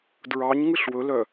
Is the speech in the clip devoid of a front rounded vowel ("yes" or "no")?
no